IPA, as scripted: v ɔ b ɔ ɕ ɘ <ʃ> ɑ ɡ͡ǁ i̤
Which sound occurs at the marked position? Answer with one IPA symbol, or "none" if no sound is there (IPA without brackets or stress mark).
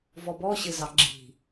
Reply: z